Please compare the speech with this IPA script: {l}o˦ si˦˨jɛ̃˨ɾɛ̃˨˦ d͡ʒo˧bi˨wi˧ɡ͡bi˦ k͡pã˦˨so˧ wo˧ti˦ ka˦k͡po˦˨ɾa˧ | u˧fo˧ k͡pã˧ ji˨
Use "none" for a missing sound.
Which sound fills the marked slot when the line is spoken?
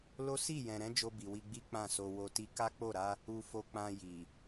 l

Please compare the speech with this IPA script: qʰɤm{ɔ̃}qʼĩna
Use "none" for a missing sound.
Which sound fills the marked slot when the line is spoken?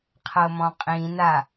ɔ̃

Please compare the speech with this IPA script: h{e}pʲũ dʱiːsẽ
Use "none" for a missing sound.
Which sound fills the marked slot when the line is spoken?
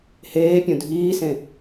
eː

